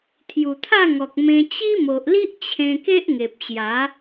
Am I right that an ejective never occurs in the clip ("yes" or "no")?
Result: yes